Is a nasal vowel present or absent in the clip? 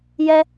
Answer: absent